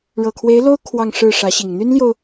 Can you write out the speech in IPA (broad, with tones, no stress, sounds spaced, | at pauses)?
ɻ ɤ˨˩ kʰ w e˧˥ ɪ̯ l o˥ ʊ̯ kʰ w ɑ˥˧ ŋ ʂ ɻ̩˥˩ ʂ ä˧˥ ɕ i˨˩ ŋ n̪ y˥ n l j o˨ ʊ̯